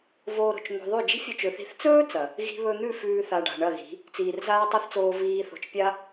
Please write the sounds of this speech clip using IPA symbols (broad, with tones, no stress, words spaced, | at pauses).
voː˧ɾo̤˨t͡ʃn̪o̤˧ðˤʉ˦˨ d͡ʒi̤˦fʲɵ˧t͡ʃɵ˨θi̤˧θ t͡sɵː˦ t͡sɐ˨ | ɣi̤˧βɵ˧n̪ʉ˦˨ fʉː˧θa˨ ɖa̤˨ɳɐ˦˨ɣi̤˨˦ | t͡siː˨rzaː˦tˤo˦θt͡soː˧ viː˧ θo̤˨t͡ʃpʲa˦